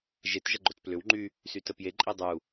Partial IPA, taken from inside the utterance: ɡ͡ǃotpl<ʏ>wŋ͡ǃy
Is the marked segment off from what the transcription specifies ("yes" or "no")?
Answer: no